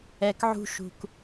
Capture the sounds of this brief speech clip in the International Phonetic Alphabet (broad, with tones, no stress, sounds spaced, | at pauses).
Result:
ɛ˨ k ʕ ṳ˧ ʃ ṳ˨ k